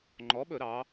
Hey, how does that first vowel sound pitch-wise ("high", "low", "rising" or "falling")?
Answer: rising